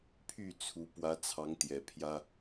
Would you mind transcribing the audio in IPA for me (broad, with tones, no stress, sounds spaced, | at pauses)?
pʰ y˥˨ t͡sʰ u˨˦ p w ä˨˦ t͡sʰ ɑ˨˦ ŋ t̪ j ɛ˨˩ pʰ j ä˦